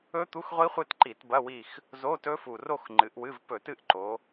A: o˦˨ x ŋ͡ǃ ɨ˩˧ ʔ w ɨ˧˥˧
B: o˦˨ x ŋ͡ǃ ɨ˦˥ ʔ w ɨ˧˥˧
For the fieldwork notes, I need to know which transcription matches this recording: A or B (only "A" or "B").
A